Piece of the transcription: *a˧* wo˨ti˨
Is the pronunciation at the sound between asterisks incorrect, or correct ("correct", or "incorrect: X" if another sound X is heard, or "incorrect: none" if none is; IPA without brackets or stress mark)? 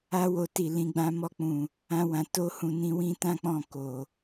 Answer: correct